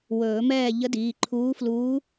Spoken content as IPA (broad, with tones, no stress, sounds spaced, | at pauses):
w ɵː˨˩˦ m ɛː˥˨ ʎ ə˧˥ d iː˩˧˩ ǃʰ uː˧˥ f l uː˧˥